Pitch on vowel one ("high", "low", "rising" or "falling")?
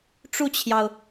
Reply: falling